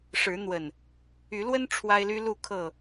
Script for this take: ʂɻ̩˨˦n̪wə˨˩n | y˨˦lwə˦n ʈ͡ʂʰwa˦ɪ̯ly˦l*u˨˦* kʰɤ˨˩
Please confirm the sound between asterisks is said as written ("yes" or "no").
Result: no